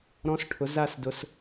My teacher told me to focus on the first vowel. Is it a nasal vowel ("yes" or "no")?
yes